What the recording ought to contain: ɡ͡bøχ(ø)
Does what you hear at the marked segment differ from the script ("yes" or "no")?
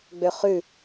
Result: yes